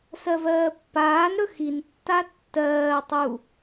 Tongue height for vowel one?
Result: mid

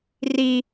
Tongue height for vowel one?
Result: high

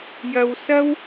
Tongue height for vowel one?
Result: low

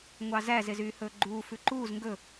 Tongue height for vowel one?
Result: low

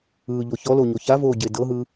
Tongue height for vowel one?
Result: high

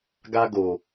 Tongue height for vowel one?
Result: low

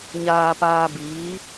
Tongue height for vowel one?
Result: low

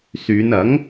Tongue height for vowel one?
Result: high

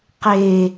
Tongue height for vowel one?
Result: mid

